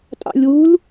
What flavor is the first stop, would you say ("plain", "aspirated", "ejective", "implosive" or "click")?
ejective